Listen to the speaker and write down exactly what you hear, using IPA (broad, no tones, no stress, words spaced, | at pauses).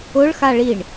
ʊɭ xaɭiɳ